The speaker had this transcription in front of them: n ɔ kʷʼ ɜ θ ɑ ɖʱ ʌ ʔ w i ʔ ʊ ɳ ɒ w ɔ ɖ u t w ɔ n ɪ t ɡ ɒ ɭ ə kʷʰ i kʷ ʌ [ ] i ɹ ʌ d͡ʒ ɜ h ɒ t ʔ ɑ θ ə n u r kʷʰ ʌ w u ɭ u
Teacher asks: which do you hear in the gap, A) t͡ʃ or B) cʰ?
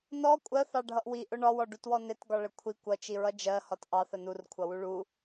A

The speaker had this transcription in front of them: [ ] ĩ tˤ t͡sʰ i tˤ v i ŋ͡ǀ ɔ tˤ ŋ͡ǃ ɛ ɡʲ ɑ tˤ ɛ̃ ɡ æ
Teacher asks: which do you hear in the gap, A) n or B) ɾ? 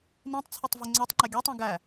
A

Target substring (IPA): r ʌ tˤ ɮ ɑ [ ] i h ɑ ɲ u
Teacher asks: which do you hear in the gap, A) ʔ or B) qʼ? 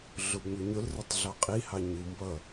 B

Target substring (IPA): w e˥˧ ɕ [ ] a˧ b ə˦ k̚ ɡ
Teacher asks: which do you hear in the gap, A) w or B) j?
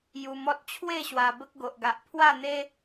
A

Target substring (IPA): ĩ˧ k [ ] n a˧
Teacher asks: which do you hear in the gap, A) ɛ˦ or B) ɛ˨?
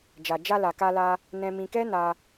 A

